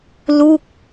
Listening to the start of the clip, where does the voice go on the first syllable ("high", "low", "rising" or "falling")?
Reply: falling